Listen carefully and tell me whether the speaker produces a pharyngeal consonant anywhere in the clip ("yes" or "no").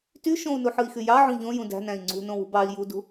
yes